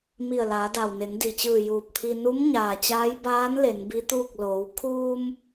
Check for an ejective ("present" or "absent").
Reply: absent